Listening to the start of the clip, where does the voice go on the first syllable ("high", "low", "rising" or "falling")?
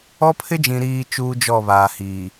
high